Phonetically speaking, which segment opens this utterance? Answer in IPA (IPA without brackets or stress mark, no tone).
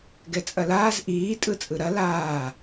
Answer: ɡ